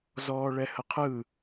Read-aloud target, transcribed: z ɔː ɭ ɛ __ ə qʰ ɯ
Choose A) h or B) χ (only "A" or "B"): A